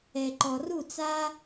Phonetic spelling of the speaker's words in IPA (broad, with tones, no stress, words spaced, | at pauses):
ɛ˩ǃɔ˩ru˥˩t͡sa˥